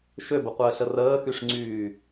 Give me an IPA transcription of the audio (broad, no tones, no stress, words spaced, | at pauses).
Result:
ʃøbəqʷəːɬə rəːxyʂŋ͡ǀyː